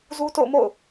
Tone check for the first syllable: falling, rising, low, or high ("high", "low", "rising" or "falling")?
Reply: high